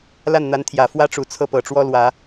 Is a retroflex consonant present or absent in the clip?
present